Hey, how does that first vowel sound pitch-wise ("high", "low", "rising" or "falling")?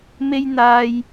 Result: high